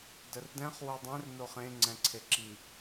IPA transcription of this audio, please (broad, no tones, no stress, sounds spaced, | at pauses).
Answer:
d ə r d ɛ̃ χ w o dˤ ɛ̃ r n o χ ẽ ŋ͡ǀ ɛ̃ ǀʰ e ǁ i